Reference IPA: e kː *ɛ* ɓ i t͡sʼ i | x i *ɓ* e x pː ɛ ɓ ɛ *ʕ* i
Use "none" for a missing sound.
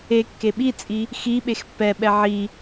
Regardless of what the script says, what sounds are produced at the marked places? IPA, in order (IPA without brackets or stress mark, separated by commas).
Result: e, ɓ, ʕ